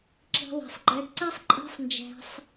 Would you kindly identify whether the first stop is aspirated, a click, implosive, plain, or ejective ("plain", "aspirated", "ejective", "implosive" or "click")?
click